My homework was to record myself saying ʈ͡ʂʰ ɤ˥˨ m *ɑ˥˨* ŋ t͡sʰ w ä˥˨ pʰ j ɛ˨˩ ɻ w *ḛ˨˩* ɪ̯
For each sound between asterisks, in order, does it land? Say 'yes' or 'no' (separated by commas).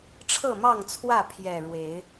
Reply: yes, no